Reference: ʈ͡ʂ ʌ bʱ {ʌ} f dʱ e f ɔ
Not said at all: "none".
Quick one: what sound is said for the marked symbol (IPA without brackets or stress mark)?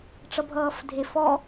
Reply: ʌː